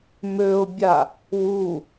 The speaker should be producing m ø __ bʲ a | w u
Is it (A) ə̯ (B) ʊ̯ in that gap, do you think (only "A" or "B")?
B